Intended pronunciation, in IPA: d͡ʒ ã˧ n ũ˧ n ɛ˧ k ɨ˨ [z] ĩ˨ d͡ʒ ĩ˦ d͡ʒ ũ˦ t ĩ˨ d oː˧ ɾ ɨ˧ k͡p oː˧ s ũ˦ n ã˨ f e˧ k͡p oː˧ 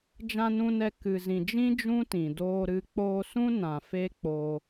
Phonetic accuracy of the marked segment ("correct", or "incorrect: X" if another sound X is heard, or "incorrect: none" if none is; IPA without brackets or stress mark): correct